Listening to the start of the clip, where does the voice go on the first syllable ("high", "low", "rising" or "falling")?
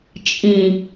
low